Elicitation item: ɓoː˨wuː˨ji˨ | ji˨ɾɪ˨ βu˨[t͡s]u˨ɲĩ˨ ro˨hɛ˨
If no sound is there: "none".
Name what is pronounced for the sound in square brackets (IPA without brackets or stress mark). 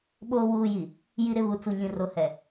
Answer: t͡s